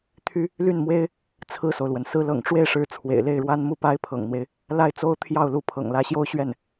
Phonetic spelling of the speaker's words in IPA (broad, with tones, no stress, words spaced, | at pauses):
t̪ʰy˥ | ly˥˩nmwe˥ɪ̯ | t͡sʰɹ̩˥˩so˩ʊ̯lwə˩n sɹ̩˥ lɤ̰˨˩ŋʈ͡ʂwe˥˩ɪ̯ʂɻ̩˧˥ t͡sʰwḛ˨˩ɪ̯le˥˩ɪ̯ɻwa˥n mu˥˩pa˥ɪ̯pʰɤ̰˨˩ŋn̪we˦ɪ̯ | la˥˩ɪ̯t͡so˥ʊ̯t̪ʰjɑ˥˩ʊ̯lu˧˥ pʰɤ̰˨˩ŋlä˧˥ɕjo˥ʊ̯ ɕɥɛ˥˩n